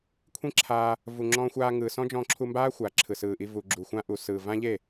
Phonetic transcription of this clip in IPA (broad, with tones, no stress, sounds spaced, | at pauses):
kʷʰ ĩ˦ ǁʰ aː˧ | v u˨ ŋ͡ǁ ɔ̃ː˧ xʷ aː˧ ŋ ɯː˨ s ɔ̃˦ d͡ʒ ɔ̃ː˧ ǁʰ u˧ m b aː˦ xʷ aː˨ ǁʰ ɯ˨ s ɯː˨ ʔ i˧ v u˨ ɡ͡ǁ u˨ xʷ ã˦ ʔ u˨ s ɯː˨ v ã˦ ʎ e˦˨